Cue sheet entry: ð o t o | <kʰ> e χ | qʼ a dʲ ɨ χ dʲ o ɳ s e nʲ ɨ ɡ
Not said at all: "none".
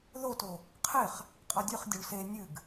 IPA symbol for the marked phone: qʰ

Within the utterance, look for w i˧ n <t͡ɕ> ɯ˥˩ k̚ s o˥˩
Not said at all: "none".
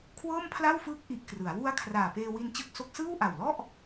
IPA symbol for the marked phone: t͡ɕ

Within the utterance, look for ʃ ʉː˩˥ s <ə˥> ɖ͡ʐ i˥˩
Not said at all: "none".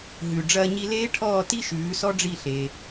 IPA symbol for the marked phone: ɔ˥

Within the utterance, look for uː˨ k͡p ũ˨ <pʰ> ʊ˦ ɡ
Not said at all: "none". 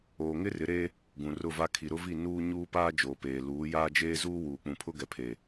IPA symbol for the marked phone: pʰ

